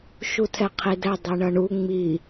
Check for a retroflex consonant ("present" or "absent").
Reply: present